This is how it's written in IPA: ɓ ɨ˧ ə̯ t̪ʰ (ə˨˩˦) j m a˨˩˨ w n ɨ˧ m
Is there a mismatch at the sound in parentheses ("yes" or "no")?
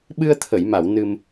yes